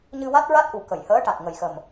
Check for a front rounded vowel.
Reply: absent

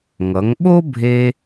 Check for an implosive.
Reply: present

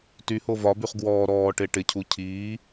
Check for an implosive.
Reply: absent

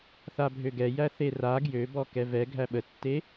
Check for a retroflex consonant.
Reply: absent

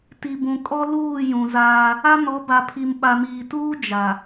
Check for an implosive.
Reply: present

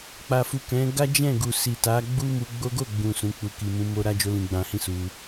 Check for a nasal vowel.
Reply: present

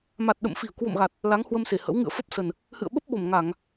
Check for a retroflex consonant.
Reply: absent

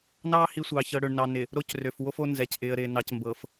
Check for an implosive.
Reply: absent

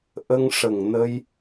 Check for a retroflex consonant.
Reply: present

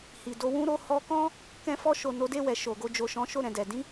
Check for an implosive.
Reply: absent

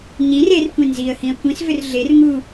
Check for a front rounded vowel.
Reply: present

